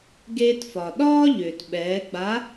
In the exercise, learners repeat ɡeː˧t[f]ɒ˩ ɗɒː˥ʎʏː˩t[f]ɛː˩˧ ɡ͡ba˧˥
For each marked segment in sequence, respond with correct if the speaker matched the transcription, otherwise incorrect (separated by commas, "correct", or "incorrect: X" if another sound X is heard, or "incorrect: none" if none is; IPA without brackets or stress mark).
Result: correct, incorrect: ɓ